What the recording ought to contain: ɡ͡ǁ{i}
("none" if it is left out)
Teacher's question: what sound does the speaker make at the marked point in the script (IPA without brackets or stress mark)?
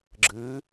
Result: ɨ